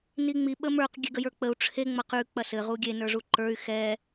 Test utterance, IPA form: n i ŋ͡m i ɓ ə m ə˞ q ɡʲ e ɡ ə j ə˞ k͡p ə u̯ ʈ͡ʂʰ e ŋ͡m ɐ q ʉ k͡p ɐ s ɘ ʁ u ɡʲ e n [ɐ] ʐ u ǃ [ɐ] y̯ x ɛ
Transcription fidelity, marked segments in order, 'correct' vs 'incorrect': incorrect, incorrect

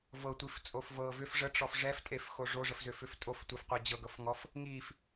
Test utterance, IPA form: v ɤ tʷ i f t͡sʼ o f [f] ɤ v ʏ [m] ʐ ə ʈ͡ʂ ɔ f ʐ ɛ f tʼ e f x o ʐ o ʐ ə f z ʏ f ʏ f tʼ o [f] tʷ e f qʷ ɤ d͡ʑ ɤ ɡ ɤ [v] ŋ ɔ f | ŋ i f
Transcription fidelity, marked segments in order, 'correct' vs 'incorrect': incorrect, incorrect, correct, incorrect

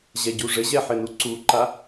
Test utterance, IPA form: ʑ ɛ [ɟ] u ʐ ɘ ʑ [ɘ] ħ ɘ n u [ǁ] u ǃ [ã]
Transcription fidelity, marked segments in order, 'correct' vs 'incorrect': correct, incorrect, incorrect, incorrect

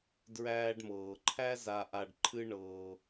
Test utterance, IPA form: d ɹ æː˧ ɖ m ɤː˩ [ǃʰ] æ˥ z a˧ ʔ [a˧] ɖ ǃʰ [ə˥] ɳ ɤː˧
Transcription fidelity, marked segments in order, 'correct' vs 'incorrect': correct, correct, incorrect

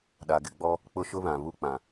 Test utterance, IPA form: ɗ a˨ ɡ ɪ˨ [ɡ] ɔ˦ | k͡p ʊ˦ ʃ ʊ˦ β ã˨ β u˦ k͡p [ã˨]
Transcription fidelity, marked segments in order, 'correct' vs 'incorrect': incorrect, correct

